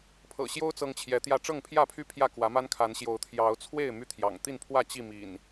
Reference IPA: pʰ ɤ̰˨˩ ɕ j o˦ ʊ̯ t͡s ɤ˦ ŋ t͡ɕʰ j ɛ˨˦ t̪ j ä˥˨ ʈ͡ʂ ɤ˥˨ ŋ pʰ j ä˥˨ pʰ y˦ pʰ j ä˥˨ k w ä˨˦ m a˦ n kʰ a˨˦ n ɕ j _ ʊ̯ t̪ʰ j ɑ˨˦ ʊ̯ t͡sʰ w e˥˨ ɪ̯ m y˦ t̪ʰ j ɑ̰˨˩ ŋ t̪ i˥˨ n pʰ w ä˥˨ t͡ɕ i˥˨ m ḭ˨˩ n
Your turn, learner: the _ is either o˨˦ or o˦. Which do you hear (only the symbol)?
o˨˦